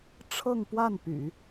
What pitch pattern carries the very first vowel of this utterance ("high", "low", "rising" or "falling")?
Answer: falling